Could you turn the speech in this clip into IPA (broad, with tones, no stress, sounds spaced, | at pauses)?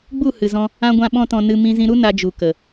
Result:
ɡ͡b u˦˨ h ɨ˨ z ɔ̃˧ | ã˦ ɡʷ ã˦ ɓ ɔ̃˦ t ɔ̃˧ n ɨ˧ m ĩ˧ z ĩ˧ ɾ u˦ n a˧ d͡ʒ u˨ k ə˨